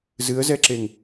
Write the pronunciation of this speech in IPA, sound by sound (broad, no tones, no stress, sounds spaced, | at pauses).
z ɨ ə̯ z ɛ ǁ e ŋ